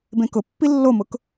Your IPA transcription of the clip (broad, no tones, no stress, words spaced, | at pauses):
bẽkʊpːi lːomʊk